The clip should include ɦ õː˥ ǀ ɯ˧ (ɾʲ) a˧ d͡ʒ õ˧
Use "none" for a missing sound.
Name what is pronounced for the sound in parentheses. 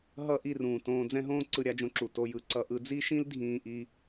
ɾʲ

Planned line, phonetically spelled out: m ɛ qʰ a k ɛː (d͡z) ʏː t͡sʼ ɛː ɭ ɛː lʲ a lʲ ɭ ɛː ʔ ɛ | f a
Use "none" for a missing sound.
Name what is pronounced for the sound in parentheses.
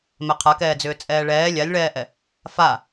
d͡z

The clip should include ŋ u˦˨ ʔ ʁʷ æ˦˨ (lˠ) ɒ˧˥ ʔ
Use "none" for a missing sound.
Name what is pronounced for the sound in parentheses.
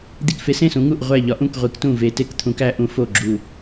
ʎ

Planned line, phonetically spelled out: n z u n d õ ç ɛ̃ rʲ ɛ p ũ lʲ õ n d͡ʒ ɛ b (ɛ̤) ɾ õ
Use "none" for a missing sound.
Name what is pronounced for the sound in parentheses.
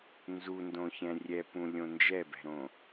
ɛ̤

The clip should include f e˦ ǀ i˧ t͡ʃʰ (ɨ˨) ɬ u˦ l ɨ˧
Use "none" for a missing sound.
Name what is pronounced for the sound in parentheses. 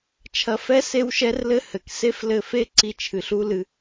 ɨ˨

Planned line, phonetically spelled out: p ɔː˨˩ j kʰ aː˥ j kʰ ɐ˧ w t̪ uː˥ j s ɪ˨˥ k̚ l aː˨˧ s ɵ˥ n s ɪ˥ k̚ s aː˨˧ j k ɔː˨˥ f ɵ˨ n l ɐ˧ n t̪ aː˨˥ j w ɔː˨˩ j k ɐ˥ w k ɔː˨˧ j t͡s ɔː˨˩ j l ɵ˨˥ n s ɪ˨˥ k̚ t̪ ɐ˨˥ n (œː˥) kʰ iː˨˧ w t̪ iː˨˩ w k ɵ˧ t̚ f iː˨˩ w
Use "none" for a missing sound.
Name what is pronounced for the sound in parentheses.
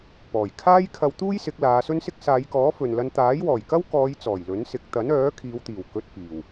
œː˨˥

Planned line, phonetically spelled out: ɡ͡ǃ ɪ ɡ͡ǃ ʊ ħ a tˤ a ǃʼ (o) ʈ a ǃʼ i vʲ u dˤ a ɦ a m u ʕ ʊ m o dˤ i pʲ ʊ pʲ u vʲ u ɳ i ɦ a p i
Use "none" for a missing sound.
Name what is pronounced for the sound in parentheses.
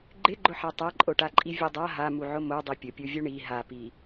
o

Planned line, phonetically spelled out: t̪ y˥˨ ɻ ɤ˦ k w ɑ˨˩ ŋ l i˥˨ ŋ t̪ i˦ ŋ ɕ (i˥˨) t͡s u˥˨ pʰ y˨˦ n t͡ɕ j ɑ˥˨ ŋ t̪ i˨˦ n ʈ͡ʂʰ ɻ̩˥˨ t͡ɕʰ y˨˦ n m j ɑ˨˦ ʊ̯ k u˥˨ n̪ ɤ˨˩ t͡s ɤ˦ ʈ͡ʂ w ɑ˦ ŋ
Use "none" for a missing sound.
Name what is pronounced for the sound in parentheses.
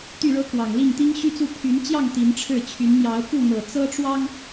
y˥˨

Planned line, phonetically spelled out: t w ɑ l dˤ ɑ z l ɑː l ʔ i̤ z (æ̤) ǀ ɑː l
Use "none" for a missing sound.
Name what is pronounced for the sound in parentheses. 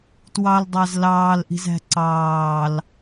æ̤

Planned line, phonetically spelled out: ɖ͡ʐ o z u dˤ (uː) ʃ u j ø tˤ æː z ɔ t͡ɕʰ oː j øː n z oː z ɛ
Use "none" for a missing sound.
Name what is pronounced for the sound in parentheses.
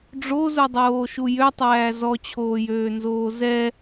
oː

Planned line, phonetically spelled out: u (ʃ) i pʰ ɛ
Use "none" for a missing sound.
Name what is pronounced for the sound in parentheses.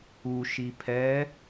ʃ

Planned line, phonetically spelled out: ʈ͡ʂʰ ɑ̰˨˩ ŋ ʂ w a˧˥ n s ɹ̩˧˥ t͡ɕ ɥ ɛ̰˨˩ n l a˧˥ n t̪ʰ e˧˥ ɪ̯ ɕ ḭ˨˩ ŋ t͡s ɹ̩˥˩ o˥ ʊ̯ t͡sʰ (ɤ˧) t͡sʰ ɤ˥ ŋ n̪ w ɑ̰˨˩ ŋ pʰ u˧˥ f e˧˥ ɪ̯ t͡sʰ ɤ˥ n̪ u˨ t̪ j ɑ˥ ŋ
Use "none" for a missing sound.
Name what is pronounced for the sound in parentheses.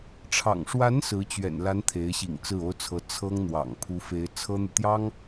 ɤ˧˥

